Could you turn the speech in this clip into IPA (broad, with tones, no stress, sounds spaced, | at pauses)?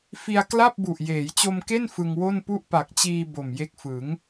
f i˧ a̯ k l a˥˩ p̚ b u˨˩ ʔ j eː˩˦ j t͡ɕ o˧ m k e˥˩ n f ɯ˧ ŋ w o˥˩ n p u˥˩ ʔ p a˨˩ k̚ t͡ɕ iː˧ b o˨˩ m j e˦˥ k̚ f ɯ˩˦ ŋ